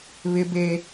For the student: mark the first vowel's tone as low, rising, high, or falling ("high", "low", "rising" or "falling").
high